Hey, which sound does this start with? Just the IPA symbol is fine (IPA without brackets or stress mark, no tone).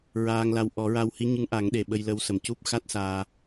ɹ